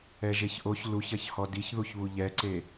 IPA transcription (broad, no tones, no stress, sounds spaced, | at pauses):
ɛ ʒ e ç ʔ o ç l u ç ɐ ç h ɔ d i ç ð u ç β u ʎ ɛ ǀ e